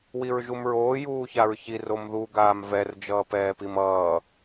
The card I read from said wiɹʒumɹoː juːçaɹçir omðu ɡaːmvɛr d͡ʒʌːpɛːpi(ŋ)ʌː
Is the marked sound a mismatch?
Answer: yes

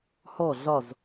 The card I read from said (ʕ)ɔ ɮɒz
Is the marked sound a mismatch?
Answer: yes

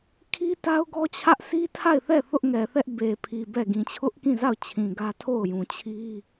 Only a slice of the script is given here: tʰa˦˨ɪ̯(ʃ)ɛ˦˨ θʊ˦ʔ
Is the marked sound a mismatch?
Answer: yes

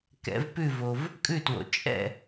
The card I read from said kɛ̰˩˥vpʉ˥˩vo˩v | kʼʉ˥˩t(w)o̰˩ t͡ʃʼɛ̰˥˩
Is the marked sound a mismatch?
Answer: no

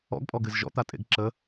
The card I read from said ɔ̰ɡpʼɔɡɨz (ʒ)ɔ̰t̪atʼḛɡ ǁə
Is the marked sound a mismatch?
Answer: no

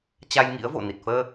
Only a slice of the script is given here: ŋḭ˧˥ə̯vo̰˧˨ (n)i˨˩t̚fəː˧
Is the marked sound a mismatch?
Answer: no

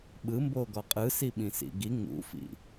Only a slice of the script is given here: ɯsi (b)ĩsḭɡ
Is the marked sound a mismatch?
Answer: yes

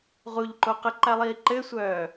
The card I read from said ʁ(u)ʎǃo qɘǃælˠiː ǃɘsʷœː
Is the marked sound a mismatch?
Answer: no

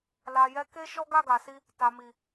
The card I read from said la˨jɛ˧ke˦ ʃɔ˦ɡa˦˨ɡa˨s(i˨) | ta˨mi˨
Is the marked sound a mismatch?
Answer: yes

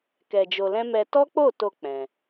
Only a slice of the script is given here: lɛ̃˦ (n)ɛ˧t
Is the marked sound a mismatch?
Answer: yes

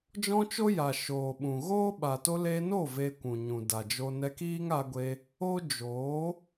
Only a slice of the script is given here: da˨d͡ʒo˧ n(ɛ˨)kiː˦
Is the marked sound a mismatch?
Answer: yes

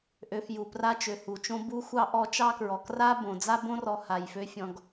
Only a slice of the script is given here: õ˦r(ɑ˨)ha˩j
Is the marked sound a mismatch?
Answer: yes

